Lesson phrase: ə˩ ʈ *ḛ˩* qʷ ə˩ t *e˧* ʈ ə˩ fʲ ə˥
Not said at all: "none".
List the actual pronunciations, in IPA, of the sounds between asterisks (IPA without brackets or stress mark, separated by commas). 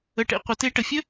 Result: ḛ˩, e˧